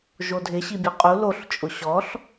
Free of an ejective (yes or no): no